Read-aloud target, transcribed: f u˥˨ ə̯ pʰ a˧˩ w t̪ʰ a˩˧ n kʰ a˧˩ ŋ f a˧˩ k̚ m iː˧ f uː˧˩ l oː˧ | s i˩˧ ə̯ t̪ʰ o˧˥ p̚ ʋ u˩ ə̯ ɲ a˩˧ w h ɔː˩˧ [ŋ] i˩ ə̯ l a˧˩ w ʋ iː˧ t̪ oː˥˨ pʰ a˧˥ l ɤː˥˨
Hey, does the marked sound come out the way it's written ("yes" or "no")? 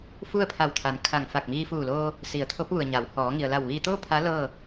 yes